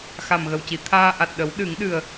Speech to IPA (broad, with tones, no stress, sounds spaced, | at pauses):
x a˨˩ m ɣ ə˨˩ w c i˨˩˨ t̪ʰ aː˧ ʔ a˨˩ t̚ ɗ ə˨˩˦ w ɗ ɨ˨˩˦ ŋ ɗ ɨ˨˩ ə̯